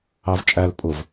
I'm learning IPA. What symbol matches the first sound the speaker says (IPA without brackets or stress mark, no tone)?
ɑ